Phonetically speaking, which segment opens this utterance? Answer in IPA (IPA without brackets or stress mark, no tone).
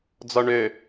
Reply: d͡z